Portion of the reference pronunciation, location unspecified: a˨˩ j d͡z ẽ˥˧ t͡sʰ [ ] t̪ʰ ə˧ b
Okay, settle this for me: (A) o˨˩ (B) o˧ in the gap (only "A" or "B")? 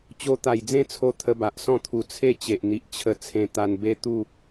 B